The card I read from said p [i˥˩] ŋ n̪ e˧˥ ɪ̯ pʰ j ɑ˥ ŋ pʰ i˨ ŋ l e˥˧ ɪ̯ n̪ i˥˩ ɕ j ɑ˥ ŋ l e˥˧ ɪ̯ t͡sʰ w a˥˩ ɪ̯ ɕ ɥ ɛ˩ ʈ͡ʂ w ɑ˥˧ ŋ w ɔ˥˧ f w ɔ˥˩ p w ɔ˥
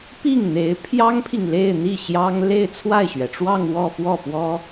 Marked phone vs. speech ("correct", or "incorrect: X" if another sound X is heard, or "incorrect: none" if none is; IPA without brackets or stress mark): correct